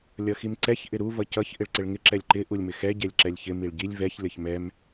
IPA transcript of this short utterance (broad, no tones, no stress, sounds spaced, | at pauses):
lʲ ʌ x i m ǀ ɛ ç ʔ ɪ ɾ u v ʌ c ʌ ç ʔ ɪ ɭ ǀ ɪ ɭ ŋ ɪ ǁ ɛ lʲ ǃ ɪ ʔ u lʲ m ɪ x ɛ ɟ ɛ lʲ ǁ ɛ lʲ ç ɪ m i ɭ ɟ i lʲ v ɛ ç lʲ ʌ ç m ɛ m